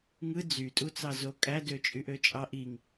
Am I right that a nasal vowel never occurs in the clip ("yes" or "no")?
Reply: yes